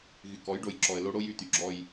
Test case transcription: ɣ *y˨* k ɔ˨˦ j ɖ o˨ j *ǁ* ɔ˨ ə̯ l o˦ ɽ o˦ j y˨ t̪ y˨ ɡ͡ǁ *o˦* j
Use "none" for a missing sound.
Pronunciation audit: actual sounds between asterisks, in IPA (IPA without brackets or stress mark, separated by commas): y˨, ǁ, ɔ˦